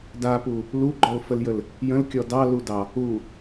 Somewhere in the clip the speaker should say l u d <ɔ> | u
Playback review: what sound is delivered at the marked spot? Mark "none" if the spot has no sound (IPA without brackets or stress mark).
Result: ɑ